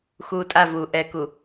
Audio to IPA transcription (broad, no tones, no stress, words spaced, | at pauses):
xuːtʼavuː ʔɛku